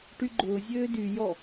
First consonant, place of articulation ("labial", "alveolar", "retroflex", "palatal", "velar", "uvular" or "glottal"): retroflex